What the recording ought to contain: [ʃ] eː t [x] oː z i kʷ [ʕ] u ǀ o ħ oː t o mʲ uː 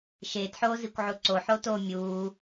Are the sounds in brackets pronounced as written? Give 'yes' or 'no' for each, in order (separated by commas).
yes, no, yes